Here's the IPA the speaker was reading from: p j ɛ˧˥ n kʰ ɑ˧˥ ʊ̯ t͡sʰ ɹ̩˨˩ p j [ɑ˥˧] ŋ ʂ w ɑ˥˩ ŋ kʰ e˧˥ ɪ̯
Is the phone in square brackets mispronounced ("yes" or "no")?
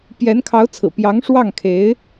yes